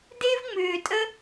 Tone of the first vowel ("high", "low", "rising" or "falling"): high